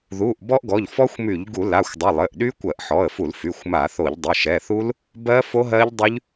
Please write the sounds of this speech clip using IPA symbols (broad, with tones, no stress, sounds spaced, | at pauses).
ð u˩˧˩ ʔ b ɔ˦˥ ʔ ɡ ɔ˩˧˩ ʎ f ɔ˦˥ xʷ m y˧˩˧ ʎ ɡ u˧˩˧ l a˩˧˩ xʷ dˤ ɘ˩˧˩ lˠ ɘ˩˧˩ ʔ ɗ y˦˥ kʷ ɜ˧˩˧ ʔ ħ ɔ˩˧˩ ə̯ f u˧˩˧ l f y˩˧˩ xʷ m a˧˩˧ θ o˧˩˧ ʎ dˤ ə˩˧˩ ʃ ɛ˩˧˩ θ u˦˥ l | b ɜ˦˥ f o˦˥ ɦ ɜ˦˥ ʎ dˤ y˦˥ ʎ